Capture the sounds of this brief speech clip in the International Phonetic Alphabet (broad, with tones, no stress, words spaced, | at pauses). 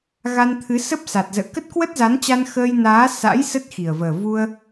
ɣa˧nt̪ʰɨ˨˦sə˦˥p̚ sa˨˩t̚zə̰ː˧˨ kə˦˥t̚kwə˦˥t̚za˨˦nt͡ɕa˧n xəː˧jnaː˨˦ sa̰˧˥j sə˦˥t̚xi˨˩ə̯vəː˨˩ vu˧ə̯